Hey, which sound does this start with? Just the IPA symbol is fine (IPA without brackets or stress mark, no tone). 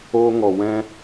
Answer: oː